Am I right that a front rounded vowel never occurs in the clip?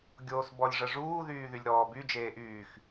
no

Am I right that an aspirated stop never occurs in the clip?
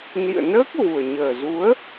yes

